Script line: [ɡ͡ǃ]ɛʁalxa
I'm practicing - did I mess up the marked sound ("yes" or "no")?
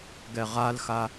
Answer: yes